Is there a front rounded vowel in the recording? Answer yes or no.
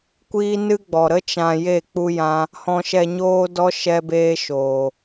no